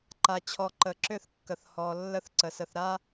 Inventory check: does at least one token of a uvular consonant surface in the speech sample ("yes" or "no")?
no